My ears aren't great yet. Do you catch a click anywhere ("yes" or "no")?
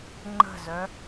yes